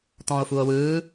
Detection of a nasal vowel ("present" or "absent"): present